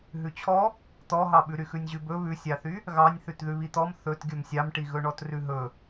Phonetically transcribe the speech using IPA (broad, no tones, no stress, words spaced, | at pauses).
ɦʉt͡ɕʰɔ | t̪ɔɦɑɓʉɾy xʉnʲʑʉbɵ βʉsʲɑθy | ɣɑnʲ θʉtðʉβit̪ɔm θɵt ɡʲɵmsʲɑmʈi ɣɵɳɔtrʉɦɵ